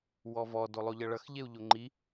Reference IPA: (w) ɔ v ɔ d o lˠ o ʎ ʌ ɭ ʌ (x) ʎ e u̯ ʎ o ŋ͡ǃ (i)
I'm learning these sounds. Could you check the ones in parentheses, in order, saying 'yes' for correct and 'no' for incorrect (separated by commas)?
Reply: yes, yes, yes